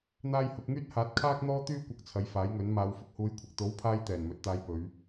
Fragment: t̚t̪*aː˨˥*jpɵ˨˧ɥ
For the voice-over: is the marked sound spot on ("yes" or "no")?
no